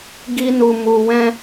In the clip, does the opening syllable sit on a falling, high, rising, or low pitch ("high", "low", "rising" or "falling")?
high